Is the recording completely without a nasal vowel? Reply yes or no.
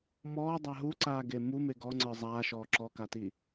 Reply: yes